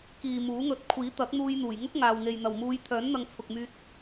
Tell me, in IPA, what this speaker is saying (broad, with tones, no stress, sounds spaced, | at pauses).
k iː˨ m uː˨˥ ŋ ɵ˧ t̚ kʷʰ iː˨˥ t̪ ɐ˨˥ k̚ n̪ uː˧ j n̪ uː˨˩ j ŋ ʊ˥ k̚ ŋ aː˨ w ŋ e˨ j n̪ ɐ˨˩ w m uː˨˧ j t̪ʰ œː˨˥ n n̪ ɐ˧ ŋ t͡sʰ ʊ˨ k̚ m yː˧ t̚